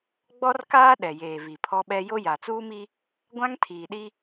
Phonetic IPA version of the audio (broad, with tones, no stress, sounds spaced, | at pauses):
ɡ͡b ɔ˦ r k aː˦ ɗ ɛ˨ j eː˨ v i˨ pʰ ɔ˦ ɓ ɛ˦ j o˦ j a˨ t͡s uː˦ m i˦ | ɡʷ ã˦ ŋ tʰ iː˨ ɗ i˦